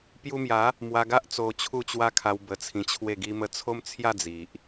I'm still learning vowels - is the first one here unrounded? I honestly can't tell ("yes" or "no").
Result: no